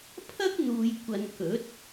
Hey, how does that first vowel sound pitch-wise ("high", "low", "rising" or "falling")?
high